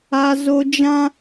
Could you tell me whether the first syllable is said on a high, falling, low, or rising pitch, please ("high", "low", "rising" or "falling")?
high